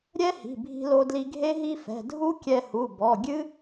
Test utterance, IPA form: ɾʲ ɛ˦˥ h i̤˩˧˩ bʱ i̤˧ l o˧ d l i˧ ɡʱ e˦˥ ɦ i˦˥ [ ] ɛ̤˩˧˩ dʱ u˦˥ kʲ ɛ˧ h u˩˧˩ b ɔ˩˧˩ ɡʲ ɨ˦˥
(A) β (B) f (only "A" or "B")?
B